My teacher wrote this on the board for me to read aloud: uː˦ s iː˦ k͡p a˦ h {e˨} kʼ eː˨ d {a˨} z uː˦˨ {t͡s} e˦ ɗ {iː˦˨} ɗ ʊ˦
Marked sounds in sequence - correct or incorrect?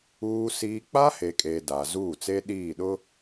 correct, correct, correct, correct

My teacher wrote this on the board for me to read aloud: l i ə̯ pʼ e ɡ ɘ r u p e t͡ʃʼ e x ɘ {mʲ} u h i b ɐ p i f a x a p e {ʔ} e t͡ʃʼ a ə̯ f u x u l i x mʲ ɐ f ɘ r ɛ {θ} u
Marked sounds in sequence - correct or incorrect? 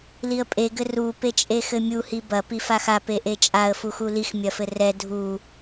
correct, correct, incorrect

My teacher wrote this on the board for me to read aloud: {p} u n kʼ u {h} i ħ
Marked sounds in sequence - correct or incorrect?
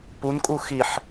correct, incorrect

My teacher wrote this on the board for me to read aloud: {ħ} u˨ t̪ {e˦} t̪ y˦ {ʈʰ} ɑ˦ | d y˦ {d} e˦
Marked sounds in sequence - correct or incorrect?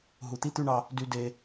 incorrect, incorrect, incorrect, correct

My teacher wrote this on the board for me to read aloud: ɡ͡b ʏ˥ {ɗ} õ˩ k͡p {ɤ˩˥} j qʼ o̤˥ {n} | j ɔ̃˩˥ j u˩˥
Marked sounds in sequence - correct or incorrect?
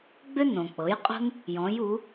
incorrect, correct, correct

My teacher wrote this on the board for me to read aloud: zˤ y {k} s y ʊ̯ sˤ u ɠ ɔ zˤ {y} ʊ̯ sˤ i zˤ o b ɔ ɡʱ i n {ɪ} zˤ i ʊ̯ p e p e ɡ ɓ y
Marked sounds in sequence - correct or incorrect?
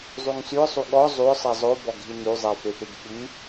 incorrect, correct, incorrect

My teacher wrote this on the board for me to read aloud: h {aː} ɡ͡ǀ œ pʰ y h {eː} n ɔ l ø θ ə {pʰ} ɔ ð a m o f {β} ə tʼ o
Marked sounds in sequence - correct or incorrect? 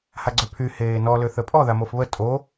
incorrect, correct, incorrect, correct

